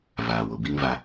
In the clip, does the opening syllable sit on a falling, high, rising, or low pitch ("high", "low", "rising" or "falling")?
low